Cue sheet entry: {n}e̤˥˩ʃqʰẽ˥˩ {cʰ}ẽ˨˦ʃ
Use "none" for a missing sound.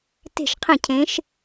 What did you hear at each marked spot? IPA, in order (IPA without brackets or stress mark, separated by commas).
t, cʰ